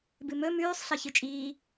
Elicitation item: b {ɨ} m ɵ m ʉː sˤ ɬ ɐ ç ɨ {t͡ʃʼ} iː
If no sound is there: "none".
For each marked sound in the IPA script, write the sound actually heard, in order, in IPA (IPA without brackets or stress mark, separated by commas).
ɨ, t͡ʃʼ